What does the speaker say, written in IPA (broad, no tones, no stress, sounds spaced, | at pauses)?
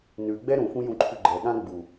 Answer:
n ʉ ɡ͡b ɛ ɾ ũ f ũ j ũ ǃʰ ʉ ɡ͡ǃ ɛ ɠ ã ɡ͡b u